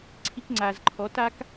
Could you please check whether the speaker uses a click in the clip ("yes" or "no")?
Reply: yes